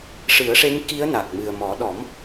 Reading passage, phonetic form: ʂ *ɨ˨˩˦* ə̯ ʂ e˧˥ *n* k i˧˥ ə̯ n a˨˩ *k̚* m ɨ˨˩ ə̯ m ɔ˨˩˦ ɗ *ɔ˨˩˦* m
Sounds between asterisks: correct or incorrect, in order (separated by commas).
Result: correct, incorrect, correct, correct